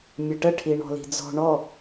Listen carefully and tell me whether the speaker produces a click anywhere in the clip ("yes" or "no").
no